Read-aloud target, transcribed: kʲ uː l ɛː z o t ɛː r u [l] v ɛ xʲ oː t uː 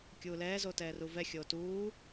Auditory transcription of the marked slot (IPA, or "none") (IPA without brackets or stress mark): none